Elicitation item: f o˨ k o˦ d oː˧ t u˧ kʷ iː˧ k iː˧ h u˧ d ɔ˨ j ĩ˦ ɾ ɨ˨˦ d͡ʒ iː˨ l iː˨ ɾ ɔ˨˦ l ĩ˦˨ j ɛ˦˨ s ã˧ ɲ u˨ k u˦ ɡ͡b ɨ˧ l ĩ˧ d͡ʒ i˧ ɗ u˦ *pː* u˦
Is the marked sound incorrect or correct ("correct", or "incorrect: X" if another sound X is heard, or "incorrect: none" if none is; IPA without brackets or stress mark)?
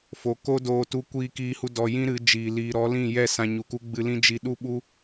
incorrect: ɓ